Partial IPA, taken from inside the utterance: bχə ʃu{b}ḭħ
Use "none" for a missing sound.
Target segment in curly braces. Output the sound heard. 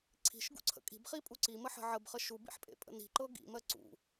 b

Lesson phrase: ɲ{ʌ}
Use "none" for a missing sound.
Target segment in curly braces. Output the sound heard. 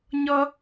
ʌ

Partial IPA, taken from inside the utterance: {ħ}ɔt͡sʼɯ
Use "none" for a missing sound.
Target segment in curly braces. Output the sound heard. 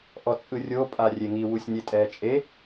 ʔ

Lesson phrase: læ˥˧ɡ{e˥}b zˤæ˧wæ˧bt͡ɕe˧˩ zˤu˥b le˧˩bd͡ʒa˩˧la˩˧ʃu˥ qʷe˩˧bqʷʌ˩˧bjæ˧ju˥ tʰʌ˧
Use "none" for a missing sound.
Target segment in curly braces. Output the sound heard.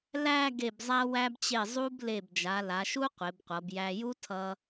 e˧˩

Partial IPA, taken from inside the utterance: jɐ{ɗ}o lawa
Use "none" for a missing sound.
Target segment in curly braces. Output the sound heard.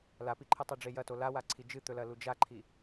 t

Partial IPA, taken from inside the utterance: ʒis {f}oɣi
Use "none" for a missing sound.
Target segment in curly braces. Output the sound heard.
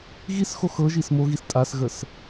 m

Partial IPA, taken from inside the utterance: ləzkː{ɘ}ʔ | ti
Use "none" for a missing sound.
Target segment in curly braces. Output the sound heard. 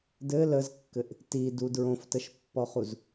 ɘ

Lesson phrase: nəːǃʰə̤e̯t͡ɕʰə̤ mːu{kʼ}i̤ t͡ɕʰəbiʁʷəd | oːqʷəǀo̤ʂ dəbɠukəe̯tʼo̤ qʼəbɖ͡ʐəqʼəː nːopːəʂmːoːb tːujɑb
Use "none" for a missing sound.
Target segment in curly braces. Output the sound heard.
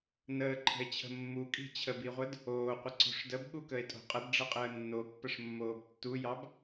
kʼ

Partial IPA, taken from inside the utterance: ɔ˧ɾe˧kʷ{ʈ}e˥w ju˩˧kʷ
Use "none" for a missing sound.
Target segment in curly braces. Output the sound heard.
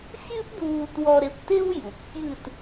t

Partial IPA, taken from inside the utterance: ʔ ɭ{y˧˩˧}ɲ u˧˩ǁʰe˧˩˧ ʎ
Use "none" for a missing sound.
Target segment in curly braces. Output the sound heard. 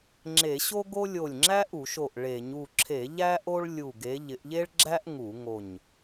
e˧˩˧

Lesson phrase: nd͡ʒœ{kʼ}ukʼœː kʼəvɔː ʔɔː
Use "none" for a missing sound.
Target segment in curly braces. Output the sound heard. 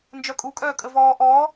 kʼ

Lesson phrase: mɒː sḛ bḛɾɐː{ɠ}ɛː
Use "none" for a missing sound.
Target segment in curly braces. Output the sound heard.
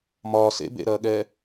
ɠ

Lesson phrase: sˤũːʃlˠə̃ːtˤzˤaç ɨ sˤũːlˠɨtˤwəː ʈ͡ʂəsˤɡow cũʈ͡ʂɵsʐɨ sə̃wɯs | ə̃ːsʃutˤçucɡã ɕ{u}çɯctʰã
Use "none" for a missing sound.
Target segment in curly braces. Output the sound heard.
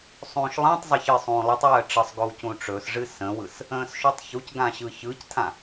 ɯ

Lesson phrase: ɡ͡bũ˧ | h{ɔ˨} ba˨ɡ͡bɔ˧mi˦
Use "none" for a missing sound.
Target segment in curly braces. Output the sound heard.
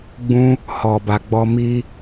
ɔ˨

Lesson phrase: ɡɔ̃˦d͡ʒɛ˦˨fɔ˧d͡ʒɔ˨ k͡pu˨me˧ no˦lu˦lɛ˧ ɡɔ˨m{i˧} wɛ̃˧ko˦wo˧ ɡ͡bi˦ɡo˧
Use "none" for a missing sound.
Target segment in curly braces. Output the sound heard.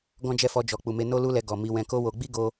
i˧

